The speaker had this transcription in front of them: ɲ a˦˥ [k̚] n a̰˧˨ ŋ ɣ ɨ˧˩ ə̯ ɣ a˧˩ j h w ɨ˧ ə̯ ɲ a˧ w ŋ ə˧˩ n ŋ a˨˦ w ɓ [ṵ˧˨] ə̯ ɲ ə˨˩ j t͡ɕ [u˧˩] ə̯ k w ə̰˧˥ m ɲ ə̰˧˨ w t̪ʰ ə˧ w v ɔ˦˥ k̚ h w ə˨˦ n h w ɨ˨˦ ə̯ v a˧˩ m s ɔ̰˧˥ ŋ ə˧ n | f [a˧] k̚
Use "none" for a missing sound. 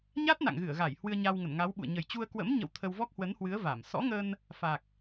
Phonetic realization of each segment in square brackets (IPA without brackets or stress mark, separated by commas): t̚, ṵ˧˨, u˧, a˨˩